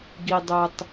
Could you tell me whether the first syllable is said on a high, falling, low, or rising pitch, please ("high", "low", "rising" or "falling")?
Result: high